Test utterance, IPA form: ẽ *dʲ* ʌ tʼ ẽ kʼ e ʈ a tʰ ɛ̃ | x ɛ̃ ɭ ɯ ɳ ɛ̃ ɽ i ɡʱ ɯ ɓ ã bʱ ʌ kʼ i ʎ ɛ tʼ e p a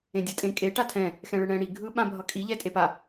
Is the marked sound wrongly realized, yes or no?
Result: no